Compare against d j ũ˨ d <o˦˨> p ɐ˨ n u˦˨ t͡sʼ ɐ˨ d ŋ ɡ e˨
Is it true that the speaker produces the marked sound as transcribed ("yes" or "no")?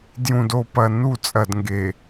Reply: no